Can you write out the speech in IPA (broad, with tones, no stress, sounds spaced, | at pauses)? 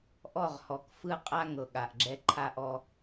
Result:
ʔ ɔ˦˨ ʁ h ɔ˨ k f ɯ˦ qʼ a˦ ŋ ɤ˨ ɠ a˨ ʔ ɡ͡ǁ ɛ˦ ǃʰ a˦ ʔ ɔ˦